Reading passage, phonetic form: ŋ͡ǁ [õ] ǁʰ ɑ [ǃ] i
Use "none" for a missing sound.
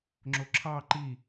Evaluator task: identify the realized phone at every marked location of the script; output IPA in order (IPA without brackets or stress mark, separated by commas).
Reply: o, ǃ